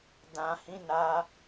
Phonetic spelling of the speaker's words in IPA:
d ã˨ h ĩ˨˦ n a˧

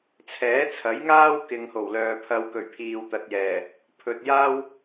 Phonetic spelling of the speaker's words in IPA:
t͡sʰ ɛː˨˥ t͡sʰ ɐ˨˥ j ŋ aː˥ w k ɪ˨ ŋ h o˨˩ w l œː˨ pʰ ɐ˧ w k ɵ˨˩ ɥ pʰ iː˨ w t̪ ɐ˨ t̚ j ɛː˨˩ | pʰ ɵ˨ t̚ j aː˥ w

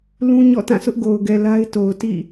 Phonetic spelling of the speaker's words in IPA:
l ũ˦ ɲ ɔ̰˦˨ t ã˦˨ sʰ ʊ˦ ʔ ɡ o˨ ʊ̯ ɡ ɛ˨ l a˦ ɪ̯ t o˨ ʊ̯ t ḭ˦˨

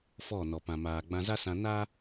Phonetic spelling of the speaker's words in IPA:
f ɔ˦˨ n ɔ˨ p ã˨ m aː˨ ɡ͡b ã˧ z a˦ s ã˧ n a˦

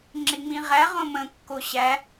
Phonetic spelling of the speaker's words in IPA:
ŋ͡ǁ ɪ ŋ͡m ĩ ʁ æ ʁ õ m ə̃ kː o ɕ æ

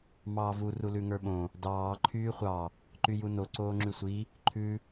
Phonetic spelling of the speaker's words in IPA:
m ɑː v u r u l ʉ ŋ ə˞ ɓ õ | d ɑː ǃʰ yː χʷ ɑ | ǃ y j u n o ǀ oː ŋ͡ǁ y sʷ i | ǃʰ ʉ

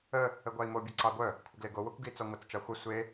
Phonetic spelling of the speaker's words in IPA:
ə | ə ɡʷ ɑ i̯ m o bʲ ʌ ǀ ɑ ɡʷ œ | kʷʰ ə ɡ l e ɡ o w o kʷ ɡ i t͡s ɔ ŋʷ ɑ t͡s t͡ʃ ɑ xʷ ʌ sʷ e

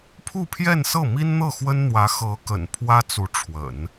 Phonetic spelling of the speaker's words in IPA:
pʰ u˥˧ pʰ j ɛ˥˧ n s ɤ˥˩ m i˥ n n̪ ɤ˥˩ x w ə˥ n n̪ w ä˧˥ x ɤ˧˥ k ə̰˨˩ n pʰ w ä˥ t͡s u˧˥ ʈ͡ʂʰ w ə̰˨˩˦ n

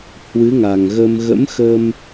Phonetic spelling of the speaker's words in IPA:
h w ɨ˨˦ ŋ a˨˩ ŋ ɣ ə˧ m ɣ ə̰˧˥ m x ə˧ m

